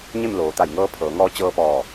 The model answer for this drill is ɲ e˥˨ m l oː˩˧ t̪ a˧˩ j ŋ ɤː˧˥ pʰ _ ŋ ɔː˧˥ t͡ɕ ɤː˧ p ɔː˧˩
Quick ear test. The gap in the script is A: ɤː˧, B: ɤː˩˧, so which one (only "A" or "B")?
B